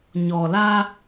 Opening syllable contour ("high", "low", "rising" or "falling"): low